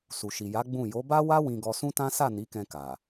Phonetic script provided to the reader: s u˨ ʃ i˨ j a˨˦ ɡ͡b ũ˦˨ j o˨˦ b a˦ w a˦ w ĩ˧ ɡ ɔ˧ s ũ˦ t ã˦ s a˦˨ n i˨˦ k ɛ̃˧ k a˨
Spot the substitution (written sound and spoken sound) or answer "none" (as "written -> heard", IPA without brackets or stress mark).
none